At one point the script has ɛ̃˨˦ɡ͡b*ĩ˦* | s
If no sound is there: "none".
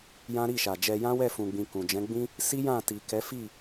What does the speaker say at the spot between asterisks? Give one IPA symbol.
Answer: ĩ˦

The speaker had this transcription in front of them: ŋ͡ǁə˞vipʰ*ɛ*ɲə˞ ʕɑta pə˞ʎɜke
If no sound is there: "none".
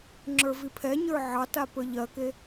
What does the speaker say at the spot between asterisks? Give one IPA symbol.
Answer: ɛ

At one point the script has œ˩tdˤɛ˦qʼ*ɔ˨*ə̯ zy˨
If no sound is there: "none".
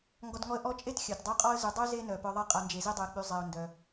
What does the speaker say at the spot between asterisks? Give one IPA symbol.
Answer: ɔ˦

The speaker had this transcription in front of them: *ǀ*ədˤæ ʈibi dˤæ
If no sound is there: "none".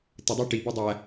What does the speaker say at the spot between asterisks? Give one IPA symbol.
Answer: t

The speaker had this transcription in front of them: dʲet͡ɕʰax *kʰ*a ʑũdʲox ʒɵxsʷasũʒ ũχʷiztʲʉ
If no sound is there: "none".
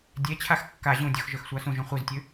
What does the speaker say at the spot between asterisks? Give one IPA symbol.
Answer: kː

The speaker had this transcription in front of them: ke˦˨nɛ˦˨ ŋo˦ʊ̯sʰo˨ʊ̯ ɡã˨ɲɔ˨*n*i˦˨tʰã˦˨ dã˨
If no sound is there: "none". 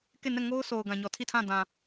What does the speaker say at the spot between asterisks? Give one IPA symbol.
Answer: tʰ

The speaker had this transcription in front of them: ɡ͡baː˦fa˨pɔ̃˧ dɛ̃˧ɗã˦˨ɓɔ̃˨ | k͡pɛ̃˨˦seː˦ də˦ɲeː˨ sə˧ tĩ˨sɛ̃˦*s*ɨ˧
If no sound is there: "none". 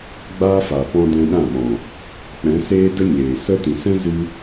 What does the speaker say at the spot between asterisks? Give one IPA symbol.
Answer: z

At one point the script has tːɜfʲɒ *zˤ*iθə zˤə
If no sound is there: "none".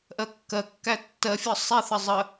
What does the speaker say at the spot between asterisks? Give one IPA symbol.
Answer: sˤ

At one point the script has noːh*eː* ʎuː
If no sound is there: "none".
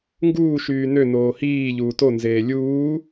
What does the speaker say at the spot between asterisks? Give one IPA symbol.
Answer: iː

